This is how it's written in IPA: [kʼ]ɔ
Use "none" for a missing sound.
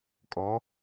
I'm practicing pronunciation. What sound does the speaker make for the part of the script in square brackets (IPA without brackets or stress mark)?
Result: kʼ